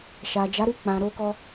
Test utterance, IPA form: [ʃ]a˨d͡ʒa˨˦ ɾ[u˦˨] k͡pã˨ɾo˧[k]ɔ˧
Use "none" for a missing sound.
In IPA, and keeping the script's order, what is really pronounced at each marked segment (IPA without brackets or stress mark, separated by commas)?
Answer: ʃ, u˦˨, k